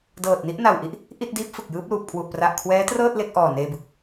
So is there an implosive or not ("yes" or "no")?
no